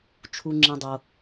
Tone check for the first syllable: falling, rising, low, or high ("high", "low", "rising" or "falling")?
low